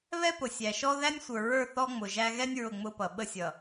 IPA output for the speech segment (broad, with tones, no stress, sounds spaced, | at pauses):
β ɛ˦ p ʊ˨ sʲ æ˨ ʃ ɔ˦ ð æ˦ nʲ sʷ ə˞˨ ɹ ə˞˦˨ θ ɔ˦ ŋ͡m ʊ˨ ʒ æ˦ ɣ ɛ˦ nʲ ɹ ʊ˦˨ ŋ͡m ʊ˦ p ʌ˨ ɓ ə˦ sʲ ʌ˨